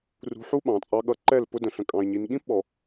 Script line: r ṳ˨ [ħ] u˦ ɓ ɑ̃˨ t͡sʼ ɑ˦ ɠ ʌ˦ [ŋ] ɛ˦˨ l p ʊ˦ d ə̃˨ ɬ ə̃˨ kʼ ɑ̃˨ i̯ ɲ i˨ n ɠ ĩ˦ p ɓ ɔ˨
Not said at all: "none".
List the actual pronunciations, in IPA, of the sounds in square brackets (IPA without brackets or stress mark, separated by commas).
ħ, ǃ